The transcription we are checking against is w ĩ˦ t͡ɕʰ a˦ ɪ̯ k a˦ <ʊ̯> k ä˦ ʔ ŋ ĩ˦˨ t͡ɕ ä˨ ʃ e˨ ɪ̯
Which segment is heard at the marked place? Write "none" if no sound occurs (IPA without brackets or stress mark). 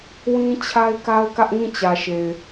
ʊ̯